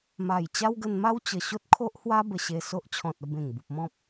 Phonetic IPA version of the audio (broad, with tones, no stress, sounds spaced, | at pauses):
m a˨˩ j t͡ɕ a˦ w ɡ ə˧ n m a˦ w t͡ɕ ə˨˩ ɕ o˦ t̚ kʰ o˦ ʔ h w a˦ b ə˧ ɕ e˧ s o˦ ʔ t͡ɕʰ ɔ̃˨ t̚ ə˥˧ b ẽ˨˩ ŋ b u˨ p̚ m ɔ̃˦ p̚